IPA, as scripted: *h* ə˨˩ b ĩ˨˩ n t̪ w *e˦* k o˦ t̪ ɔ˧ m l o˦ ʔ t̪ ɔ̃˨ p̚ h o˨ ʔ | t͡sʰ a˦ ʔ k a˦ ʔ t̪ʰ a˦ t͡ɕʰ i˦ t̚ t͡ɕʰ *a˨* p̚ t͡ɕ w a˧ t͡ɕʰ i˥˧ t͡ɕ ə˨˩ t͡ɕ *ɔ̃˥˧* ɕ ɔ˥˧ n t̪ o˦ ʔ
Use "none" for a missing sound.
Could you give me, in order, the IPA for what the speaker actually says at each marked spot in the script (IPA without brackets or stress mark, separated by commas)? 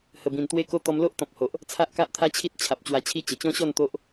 h, e˦, a˨, ɔ̃˦